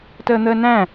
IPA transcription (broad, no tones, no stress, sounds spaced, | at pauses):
t əː n̪ əː n æ̃